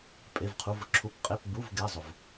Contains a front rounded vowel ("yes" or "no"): no